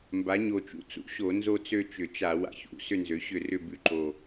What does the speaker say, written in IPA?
m b a˩˥ ɲ o˨˩ t͡ʃ ṵ˥˩ t͡s ṵ˥˩ ɕ o˧˩˧ n z o˥˧ t͡s ø˥˧ t͡ʃ ʏ˧˩˧ t͡ʃ a˧˩˧ w a̰˩˥ ç ṵ˩˥ s ʏ˥˧ n z ø˩˥ ɕ ʏ˥˩ r ʏ˥˧ b ʉ˩˥ ǃ o˨˩

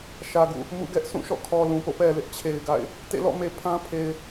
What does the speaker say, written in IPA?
ʃ ä˨ ɡ ṵ˦˨ | m ṵ˦˨ ɡ ɛ˦ ʔ sʰ ũ˦˨ ʃ ɔ̰˦˨ kʰ ɔ˨ l ũ˨ p o̰˦˨ p ɛ˨ l ɪ˦ ʔ t͡ɕʰ e˨ ɪ̯ ɡ a̰˦˨ ɪ̯ | t ḛ˦˨ l ɔ̰˦˨ m e˨ pʰ ã˦ pʰ e˨ ɪ̯

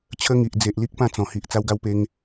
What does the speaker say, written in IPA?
t͡ɕʰ ə˧ ŋ i˨ ʔ d͡z e˨ ʔ l i˦ k̚ p ã˥˧ t͡s ɔ̃˨˩ h i˨ ʔ t͡s a˧ w ɡ a˧ w p e˧ ŋ

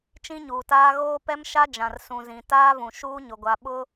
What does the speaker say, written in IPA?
t͡ʃ ĩ˦ ɲ uː˨ t aː˦ ɣ oː˦ p ɛ˦ m ʃ a˦ d͡ʒ ã˨ r s ũ˨ z ĩ˨ t aː˦ v ũ˨ ʃ uː˦ ɲ ʊ˨ ɡʷ a˨ ɓ ʊ˦

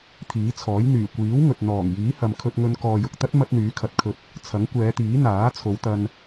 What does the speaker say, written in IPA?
t̪ʰ iː˨˥ t͡sʰ ɔː˨˥ j n̪ yː˨˩ kʷ iː˨˥ w ŋ ɵ˨ t̚ n̪ ɔː˨˩ ŋ j iː˨˥ h ɐ˨ m kʰ ɵ˧ t̚ ŋ ɵ˧ n k ɔː˨ j ʊ˨ k̚ t̪ ɐ˥ t̚ m ɐ˥ t̚ n̪ yː˨˥ kʰ ɐ˨˥ t̚ kʰ ɵ˧ t̚ | t͡sʰ ɐ˨˥ ŋ kʷ ɛː˨˧ t̪ iː˨˥ n̪ aː˨˥ t͡sʰ o˨˧ w t̪ ɐ˧ n

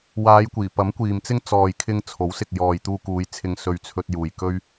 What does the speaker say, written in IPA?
w aː˨˧ j kʷ iː˨˩ p ɐ˨˥ m kʷ iː˨ m t͡s ɪ˥ ŋ t͡s ɔː˨ j kʰ ɪ˧ ŋ t͡sʰ o˨˥ w s ɪ˨ k̚ j ɔː˨ j t̪ uː˧ k uː˨˧ j t͡sʰ ɪ˧ ŋ s ɵ˧ ɥ t͡sʰ ɵ˧ t̚ j uː˨ j k ɵ˥ ɥ

